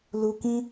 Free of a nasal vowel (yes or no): no